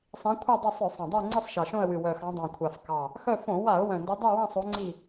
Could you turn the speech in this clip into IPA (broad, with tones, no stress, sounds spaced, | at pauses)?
sˤ ĩ˨˦ kʷʰ ɑ˦˨ dˤ o˦˨ sˤ œ˧˩˧ sˤ ɑ̃˨˩ dˤ œ˦˨ ɪ̯ ŋ͡ǀ ɨ˦˨ sˤ ʃ ɑ˨˩ ʃ õ˦˨ ə̯ w ɨ˨˩ w œ˨˩ x ɑ̃˨˦ dˤ ɑ̃˨˩ kʷʰ a˨˩ f k ɑ˨˩ | x œ˦˨ f õ˧˩˧ w a˧˩˧ ʊ̯ w œ̃˨˩ n d o˨˦ dˤ y˦˨ w ã˦˨ sˤ o˨˦ ŋ͡ǀ i˦˨